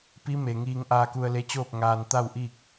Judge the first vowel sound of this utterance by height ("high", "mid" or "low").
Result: high